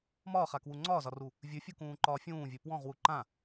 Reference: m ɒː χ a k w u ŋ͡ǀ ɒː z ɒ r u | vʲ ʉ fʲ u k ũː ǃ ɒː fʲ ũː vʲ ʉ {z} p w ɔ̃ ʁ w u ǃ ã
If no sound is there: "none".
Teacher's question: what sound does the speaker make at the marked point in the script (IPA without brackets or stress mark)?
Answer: none